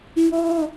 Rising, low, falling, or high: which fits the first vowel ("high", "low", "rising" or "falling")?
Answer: high